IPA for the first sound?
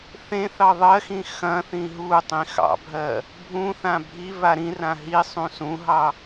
θ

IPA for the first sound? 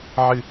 ʕ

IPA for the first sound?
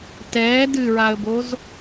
t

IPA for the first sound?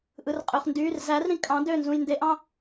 ʔ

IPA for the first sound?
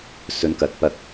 s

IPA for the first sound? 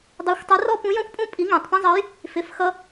dˤ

